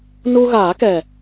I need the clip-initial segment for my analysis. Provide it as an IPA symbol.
n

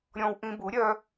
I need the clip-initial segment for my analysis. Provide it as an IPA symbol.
ɾʲ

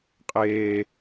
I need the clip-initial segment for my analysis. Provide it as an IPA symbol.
qʼ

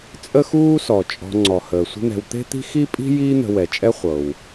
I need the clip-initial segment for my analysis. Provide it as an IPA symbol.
t͡sʼ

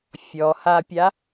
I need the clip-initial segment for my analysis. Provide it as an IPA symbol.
fʲ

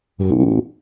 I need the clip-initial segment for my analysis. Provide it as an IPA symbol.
ɦ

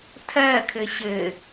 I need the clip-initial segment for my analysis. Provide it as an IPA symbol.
tʰ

